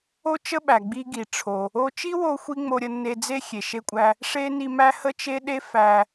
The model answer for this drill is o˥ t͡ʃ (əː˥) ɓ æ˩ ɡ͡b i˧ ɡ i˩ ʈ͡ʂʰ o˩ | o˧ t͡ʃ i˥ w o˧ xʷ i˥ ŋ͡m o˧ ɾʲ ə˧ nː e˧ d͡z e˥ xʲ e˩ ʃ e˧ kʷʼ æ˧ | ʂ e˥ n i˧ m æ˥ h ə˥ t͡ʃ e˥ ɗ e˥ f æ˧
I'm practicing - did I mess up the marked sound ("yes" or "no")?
yes